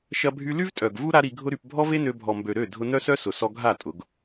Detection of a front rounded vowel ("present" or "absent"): present